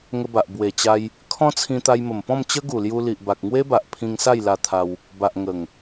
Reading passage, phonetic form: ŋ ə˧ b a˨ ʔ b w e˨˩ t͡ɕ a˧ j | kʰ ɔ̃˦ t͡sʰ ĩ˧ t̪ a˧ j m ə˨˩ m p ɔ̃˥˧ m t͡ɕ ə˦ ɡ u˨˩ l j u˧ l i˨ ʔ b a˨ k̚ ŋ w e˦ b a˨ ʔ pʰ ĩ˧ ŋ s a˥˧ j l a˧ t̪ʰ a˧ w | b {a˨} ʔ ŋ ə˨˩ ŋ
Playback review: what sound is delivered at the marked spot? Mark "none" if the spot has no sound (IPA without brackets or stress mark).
a˨